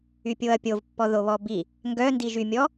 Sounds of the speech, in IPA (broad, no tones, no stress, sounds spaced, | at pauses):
y pʲ o ɐ̯ pʲ o v pː ɔ ð o β ɔ b i | ŋ ɡ œ n d i ʒ y mʲ ɔ